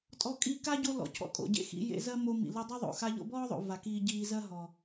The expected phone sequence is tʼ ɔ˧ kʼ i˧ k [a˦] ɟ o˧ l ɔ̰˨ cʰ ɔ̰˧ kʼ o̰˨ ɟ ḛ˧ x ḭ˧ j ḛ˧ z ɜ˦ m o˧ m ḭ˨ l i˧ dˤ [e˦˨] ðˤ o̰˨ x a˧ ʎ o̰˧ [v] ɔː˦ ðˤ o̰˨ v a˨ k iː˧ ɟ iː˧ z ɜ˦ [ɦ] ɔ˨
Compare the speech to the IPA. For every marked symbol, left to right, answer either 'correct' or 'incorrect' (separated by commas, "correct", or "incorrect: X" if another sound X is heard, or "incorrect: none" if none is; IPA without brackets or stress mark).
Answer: correct, incorrect: e˦, incorrect: b, correct